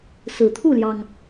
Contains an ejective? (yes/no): no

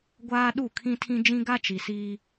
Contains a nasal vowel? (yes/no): yes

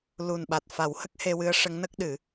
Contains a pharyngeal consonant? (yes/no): no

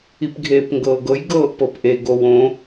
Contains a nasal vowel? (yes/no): yes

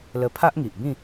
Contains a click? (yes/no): no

